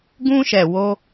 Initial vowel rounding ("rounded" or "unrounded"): rounded